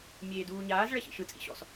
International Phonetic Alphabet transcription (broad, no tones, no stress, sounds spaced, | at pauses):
mʲ eː d uː ɲ aː z ɭ ɛ ɕ ḭ ʃ ɯ t͡sʼ ḭ ɕ ɔ̰ s